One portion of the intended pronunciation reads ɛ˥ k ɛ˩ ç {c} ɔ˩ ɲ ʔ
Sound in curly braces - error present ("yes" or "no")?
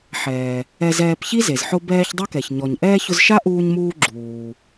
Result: yes